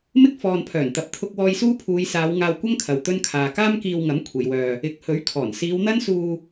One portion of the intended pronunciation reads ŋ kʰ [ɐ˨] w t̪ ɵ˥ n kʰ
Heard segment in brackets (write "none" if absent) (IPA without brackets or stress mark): ɐ˨